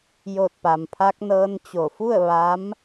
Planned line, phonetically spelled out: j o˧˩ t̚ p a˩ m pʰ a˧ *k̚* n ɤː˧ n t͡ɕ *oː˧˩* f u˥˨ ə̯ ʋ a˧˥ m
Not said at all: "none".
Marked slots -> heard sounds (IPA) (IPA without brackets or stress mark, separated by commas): k̚, o˧˩